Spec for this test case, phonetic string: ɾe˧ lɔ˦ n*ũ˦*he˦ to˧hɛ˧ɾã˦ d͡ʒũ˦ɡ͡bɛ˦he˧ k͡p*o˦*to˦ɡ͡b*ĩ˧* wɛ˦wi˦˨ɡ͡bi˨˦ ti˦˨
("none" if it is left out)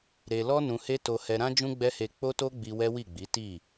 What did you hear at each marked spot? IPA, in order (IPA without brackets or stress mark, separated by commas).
ũ˧, o˦, i˧